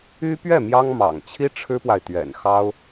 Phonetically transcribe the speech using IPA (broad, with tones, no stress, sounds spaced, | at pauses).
y˥ p ɥ ɛ˥˩ m j ɑ˥ ŋ m ɑ̰˨˩ ŋ t͡ɕʰ i˥ ʈ͡ʂʰ ɻ̩˥ p w a˨ ɪ̯ t̪ ɥ ɛ̰˨˩ n x ɑ˥ ʊ̯